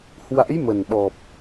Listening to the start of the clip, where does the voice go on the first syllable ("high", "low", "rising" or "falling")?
rising